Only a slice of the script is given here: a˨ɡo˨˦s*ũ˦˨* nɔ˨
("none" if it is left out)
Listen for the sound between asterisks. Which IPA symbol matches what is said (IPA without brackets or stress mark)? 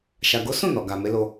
ũ˦˨